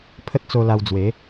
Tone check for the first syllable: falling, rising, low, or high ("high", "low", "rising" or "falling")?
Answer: high